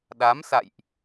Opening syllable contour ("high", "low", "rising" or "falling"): rising